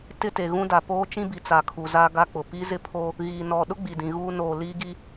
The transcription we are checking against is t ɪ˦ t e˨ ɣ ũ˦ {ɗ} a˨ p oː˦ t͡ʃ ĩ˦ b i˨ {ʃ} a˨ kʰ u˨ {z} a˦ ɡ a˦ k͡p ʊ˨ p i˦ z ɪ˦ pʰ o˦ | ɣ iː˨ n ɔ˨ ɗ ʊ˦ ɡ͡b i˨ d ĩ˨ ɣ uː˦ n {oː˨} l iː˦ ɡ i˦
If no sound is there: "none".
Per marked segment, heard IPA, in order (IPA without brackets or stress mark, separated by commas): d, t͡s, z, oː˨